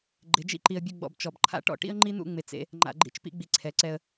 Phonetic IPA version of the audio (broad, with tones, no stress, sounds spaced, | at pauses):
ɡ͡ǃ ɪ˨˦ d͡ʒ ḭ˦ ǃ i˨ ə̯ bʲ ʊ˦˨ ɡ͡b ɔ̰˨ b t͡ʃ ɔ˨ b ǃʰ a̰˦ ʈ ɔ̰˦ ʈ ḭ˦ ə̯ ŋ͡ǃ i˦ n̪ ṵ˦˨ ŋ͡m ɪ˨ t͡s ḛ˦ | ŋ͡ǃ a̰˨ ɡ͡ǃ ḭ˨ t͡ʃ p ḭ˦ ɡ͡b i˨ ǀʰ ɛ˨˦ ǀ ɛ˦ ə̯